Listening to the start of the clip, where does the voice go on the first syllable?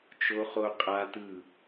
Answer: high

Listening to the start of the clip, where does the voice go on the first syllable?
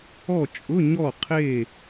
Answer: falling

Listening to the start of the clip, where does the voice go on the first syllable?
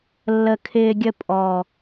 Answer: low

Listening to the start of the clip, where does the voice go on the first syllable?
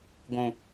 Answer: high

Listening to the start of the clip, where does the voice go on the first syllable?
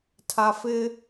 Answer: low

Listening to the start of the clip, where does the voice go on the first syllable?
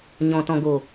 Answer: low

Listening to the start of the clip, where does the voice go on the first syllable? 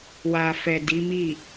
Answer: low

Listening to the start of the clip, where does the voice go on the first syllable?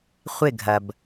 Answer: falling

